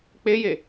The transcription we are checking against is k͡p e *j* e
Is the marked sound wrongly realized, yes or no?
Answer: no